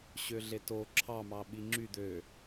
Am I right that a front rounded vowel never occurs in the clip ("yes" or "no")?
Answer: no